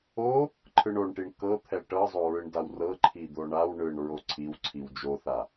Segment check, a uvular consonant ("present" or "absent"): absent